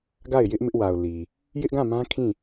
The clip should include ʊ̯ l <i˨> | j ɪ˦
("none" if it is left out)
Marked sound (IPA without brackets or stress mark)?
i˨